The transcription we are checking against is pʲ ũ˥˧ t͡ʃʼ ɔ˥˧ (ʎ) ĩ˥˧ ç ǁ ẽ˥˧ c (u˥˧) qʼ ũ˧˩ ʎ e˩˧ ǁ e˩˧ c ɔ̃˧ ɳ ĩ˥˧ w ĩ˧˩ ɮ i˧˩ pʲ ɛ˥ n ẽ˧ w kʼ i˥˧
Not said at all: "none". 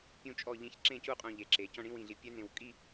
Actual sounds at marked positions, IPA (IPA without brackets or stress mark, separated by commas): ʎ, u˥˧